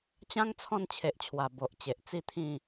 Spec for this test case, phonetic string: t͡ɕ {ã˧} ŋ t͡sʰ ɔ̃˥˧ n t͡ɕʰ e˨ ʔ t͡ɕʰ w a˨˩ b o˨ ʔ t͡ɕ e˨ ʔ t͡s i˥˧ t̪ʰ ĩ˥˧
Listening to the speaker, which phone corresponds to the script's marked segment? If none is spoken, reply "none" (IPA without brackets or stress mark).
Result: ã˦